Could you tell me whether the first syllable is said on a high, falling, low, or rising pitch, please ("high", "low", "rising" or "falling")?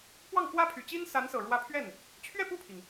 falling